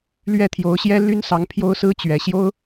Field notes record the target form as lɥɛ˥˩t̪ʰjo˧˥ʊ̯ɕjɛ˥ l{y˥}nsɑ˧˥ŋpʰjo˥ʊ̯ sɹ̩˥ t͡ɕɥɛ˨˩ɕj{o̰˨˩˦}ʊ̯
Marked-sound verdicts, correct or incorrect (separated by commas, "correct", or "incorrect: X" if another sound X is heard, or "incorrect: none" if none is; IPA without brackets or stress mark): correct, incorrect: o˥